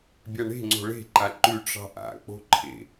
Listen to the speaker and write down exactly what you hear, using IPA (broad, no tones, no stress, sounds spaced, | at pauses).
bʲ a ɳ e̤ ŋ͡ǀ o̤ ɭ e̤ ǃ a ǃ ʉ ʈ͡ʂ ɑ̤ ʔ a̰ k͡p o̤ ǃʰ ḛ